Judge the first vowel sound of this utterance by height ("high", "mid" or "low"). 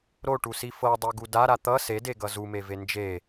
mid